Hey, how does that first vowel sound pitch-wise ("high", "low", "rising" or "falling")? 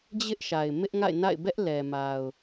high